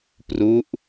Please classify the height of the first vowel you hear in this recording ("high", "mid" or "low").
high